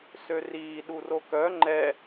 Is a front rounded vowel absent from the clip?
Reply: no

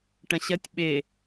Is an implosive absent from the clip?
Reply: no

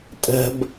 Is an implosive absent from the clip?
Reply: yes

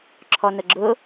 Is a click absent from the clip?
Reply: no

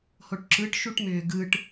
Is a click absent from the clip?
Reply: no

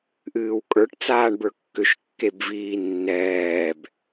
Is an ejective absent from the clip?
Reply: no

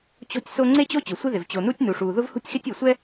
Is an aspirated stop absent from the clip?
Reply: yes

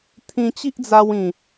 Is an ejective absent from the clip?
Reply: yes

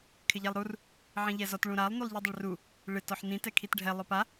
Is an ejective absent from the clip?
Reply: yes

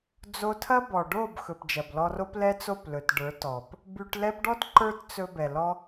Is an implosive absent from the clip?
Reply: yes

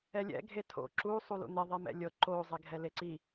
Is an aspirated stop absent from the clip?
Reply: no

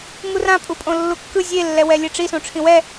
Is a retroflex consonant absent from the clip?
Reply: no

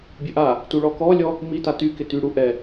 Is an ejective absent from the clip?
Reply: yes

